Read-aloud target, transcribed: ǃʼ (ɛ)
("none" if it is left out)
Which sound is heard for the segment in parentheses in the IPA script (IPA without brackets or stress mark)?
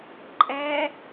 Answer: ɛ